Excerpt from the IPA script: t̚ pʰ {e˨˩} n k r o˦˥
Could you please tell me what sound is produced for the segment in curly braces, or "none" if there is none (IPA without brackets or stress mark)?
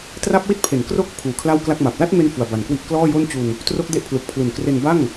e˨˩